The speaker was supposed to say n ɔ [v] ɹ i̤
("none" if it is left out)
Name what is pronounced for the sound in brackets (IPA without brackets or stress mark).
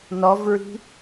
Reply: v